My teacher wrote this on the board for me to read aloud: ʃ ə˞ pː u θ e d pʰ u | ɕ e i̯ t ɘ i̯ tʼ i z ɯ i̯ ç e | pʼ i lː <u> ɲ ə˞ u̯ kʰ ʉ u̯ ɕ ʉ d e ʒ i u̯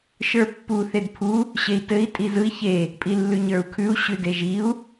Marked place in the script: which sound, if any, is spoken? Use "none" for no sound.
ʉ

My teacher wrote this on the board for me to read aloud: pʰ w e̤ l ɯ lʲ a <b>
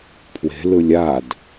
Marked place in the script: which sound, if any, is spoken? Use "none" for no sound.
d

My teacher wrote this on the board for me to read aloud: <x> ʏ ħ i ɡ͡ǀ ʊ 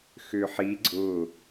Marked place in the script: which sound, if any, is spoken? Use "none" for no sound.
x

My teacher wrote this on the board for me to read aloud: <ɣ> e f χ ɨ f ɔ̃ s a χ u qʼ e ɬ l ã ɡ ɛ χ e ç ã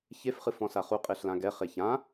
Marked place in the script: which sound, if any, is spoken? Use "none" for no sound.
ç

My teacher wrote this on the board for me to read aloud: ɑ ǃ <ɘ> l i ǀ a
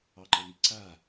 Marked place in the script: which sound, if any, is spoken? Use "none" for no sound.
ɘ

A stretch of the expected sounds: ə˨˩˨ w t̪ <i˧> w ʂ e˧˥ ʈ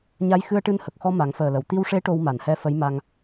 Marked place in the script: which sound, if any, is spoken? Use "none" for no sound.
i˧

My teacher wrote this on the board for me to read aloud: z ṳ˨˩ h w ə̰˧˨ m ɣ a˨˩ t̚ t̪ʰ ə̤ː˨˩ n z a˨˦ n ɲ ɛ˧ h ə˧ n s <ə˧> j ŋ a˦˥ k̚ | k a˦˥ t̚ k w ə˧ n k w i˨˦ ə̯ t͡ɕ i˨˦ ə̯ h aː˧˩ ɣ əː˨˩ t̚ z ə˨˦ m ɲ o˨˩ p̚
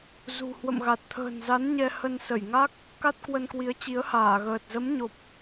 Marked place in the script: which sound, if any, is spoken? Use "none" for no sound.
ə˧˩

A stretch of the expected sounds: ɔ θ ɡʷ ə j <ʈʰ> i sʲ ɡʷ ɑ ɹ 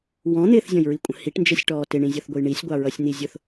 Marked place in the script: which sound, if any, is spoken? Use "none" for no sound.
ɳ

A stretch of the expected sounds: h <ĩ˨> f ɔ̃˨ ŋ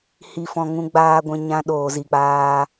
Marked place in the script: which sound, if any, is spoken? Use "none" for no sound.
i˨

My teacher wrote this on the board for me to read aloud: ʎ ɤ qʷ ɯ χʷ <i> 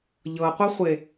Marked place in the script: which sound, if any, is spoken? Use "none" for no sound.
e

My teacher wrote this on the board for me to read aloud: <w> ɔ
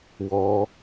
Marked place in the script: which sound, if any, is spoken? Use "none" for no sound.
w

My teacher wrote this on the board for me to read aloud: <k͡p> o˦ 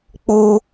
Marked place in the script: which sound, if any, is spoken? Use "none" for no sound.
k͡p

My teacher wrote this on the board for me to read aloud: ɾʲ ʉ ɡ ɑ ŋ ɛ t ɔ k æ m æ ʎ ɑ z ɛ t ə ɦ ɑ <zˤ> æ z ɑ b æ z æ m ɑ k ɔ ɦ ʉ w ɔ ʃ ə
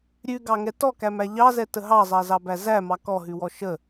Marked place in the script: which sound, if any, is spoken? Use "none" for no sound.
zˤ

